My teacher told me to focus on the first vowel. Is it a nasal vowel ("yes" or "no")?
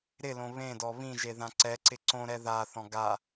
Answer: no